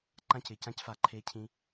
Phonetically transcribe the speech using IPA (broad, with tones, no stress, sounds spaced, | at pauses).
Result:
ǃ ã˦ c ɪ˨ c ã˦ c f a˧ ǃʰ e˦ cʰ ĩ˦